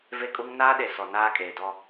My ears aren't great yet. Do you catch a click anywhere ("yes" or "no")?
no